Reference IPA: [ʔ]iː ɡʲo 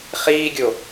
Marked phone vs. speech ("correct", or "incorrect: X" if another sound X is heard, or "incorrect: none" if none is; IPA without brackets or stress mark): incorrect: χ